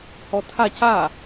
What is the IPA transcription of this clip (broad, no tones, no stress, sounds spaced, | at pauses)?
h ɔ tʰ a c a